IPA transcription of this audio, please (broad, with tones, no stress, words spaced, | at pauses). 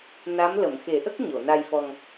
na˧˥mlə˨˩˨m xe˨˩˦ʔə˦˥k̚ ɲo˨˩˨na˧jfɔ˧ŋ